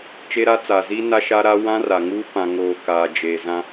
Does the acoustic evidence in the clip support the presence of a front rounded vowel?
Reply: no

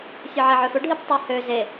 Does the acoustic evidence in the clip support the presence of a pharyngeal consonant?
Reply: yes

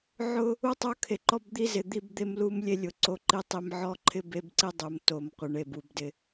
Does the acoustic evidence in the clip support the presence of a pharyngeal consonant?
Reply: yes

